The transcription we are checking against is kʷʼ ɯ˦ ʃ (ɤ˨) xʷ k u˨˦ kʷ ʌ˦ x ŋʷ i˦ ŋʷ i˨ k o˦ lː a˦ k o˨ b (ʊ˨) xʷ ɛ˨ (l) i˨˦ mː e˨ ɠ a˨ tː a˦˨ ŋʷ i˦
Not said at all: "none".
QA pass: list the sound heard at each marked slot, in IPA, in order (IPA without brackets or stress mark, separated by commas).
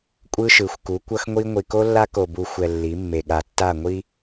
ɯ˨, u˨, lː